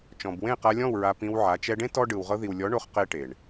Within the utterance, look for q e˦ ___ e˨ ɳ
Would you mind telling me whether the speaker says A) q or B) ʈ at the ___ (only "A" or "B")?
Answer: B